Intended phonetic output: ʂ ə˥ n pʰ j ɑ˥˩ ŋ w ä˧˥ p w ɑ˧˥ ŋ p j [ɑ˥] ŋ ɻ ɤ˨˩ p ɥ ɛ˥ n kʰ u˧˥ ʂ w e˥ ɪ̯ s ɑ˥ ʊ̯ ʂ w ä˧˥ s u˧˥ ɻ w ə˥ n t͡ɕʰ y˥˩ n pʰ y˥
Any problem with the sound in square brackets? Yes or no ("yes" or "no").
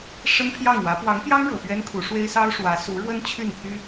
no